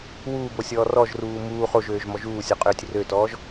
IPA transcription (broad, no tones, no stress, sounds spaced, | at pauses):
w uː b o sʲ ɔː r ɔ ʒ r uː m uː χ o ʒ øː ʒ m ɔ ʒ uː sʲ ɔ qʼ øː tʲ r ø t ɔː ʒ